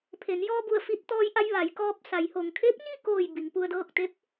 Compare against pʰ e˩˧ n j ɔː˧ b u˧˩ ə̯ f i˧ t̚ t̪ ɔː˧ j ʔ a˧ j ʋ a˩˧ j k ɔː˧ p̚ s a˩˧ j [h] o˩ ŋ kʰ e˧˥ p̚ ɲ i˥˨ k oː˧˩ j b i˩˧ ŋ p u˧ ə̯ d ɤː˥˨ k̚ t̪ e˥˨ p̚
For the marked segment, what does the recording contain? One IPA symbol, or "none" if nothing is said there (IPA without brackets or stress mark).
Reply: h